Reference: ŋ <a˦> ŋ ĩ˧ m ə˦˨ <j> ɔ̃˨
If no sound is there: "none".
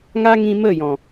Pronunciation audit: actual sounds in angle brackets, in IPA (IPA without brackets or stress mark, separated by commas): a˦, j